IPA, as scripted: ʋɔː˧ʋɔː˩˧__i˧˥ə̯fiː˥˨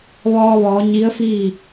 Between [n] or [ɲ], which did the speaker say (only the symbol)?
ɲ